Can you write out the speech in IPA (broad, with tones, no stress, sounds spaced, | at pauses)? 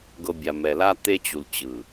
ɡ ɤ˨ bʲ a˨ m ɛ˨ l a˦ t̪ e˦ t͡ɕ u˨ l t͡ɕ ɯ˨